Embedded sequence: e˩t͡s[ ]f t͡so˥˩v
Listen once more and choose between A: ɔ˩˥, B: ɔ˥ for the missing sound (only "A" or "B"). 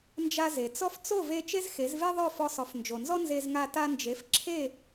B